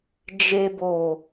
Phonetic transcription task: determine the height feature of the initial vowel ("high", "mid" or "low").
mid